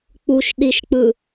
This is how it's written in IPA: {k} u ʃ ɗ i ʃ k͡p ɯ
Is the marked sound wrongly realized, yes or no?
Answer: yes